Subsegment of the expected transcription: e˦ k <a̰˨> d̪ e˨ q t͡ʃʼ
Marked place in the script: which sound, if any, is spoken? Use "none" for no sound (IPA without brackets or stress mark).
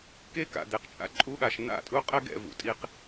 a̰˨